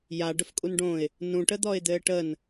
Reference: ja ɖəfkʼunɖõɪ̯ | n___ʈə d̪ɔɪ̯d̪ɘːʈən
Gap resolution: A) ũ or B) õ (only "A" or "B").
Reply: A